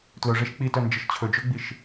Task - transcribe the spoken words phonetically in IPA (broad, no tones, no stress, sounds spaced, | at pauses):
t l ɵ ʐ e ʃ k͡p i t œ n d͡ʒ ə ʃ t͡ɕʰ ɵ d͡ʒ ɵ ɡ͡b i ʃ